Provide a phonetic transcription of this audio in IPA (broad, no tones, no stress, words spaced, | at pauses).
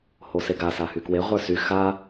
hoseɡa sahykwe ʁʷə˞sy xa